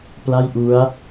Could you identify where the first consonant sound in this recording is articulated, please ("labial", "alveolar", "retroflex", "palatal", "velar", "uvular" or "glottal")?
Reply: labial